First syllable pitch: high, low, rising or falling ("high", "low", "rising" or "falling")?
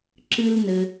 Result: high